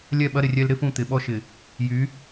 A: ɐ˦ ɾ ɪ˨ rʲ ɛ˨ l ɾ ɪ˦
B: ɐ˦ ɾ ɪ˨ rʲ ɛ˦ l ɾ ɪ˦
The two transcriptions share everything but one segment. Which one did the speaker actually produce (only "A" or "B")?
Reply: B